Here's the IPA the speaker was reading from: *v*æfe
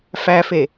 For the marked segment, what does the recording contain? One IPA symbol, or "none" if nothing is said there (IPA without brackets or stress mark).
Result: f